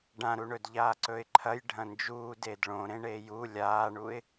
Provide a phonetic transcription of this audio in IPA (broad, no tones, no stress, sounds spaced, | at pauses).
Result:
ɖ ã ɾ u ɳ ɵ d ʎ aː ǀ ɵ ɪ̯ ǃʰ ɐ j ɖʱ ɐ̃ n d͡ʒ uː d eː d ɭ õ ɾ ẽ ɳ eː j u lʲ aː ɳ u ɪ̯